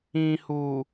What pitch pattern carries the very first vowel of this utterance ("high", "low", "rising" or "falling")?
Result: low